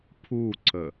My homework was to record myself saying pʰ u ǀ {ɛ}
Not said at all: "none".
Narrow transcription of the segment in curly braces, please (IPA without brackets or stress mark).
ə